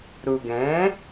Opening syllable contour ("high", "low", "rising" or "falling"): low